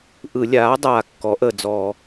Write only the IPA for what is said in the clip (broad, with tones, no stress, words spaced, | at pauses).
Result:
ʔɯ˧˩˧lʲaː˩˥dˤaː˨˩ kːɔ˩˥ʔə˨˩d͡zɔː˧˩˧